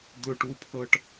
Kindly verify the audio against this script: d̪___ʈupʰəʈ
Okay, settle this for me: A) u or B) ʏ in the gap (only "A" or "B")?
B